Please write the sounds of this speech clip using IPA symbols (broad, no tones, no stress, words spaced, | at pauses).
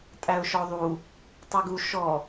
tʼæʊ̯ʃɔðˤu | tˤiɡu ʃɔ